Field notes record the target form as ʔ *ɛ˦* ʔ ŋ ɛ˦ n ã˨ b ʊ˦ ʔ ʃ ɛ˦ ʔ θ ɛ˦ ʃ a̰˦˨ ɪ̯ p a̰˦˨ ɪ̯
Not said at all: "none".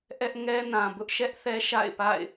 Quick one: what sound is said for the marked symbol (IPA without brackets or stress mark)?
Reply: ɛ˦